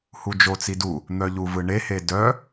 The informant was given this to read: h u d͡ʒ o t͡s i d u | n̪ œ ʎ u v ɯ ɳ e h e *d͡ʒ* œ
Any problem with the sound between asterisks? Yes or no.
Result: yes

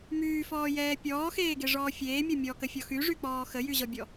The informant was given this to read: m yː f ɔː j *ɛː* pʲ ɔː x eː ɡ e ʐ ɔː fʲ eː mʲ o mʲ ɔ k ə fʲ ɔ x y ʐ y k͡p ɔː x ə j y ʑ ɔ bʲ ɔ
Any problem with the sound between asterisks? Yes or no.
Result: no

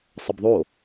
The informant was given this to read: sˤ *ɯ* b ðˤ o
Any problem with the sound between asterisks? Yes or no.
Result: yes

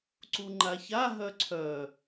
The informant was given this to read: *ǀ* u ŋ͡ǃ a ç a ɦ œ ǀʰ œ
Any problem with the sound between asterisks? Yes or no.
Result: no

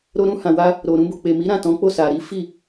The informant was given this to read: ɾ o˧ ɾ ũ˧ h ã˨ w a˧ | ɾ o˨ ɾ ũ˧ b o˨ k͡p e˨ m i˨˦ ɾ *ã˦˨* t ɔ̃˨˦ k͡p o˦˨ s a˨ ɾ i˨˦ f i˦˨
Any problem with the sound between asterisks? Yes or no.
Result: no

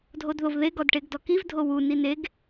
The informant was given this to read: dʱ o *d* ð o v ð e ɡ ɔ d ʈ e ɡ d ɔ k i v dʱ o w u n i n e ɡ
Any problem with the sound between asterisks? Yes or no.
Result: no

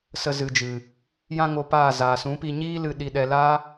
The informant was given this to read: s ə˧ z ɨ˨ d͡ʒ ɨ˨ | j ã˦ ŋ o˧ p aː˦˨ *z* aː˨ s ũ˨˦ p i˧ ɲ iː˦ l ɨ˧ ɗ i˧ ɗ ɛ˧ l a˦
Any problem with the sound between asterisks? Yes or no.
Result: no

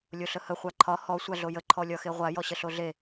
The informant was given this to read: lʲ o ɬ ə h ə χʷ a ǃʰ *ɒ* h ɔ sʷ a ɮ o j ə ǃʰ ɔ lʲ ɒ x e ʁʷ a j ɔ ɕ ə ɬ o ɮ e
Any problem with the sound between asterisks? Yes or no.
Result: no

